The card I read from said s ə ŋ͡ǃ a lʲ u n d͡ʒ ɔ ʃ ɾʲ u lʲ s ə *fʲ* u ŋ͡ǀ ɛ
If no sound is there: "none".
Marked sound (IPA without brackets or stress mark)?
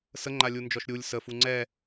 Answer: f